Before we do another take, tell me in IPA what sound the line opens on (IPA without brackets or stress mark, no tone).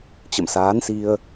t͡ɕ